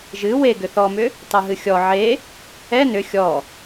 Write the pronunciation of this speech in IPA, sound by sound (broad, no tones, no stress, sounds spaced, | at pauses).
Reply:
ʒ ɨ w e ɡ ʏ θ ɔ m ʏ | tˤ ɨ ɦ ɨ xʲ ɔ ʕ e | ɛ n ʏ xʲ ɔ